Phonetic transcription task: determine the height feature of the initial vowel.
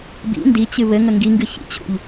high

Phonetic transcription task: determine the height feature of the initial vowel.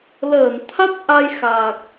mid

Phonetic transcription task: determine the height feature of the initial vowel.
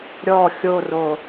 mid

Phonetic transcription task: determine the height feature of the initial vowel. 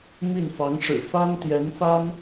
high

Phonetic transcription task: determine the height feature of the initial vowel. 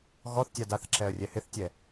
mid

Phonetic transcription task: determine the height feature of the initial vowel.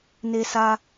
mid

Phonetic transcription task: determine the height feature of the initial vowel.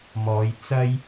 mid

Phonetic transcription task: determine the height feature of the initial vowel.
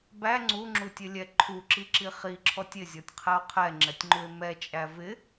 low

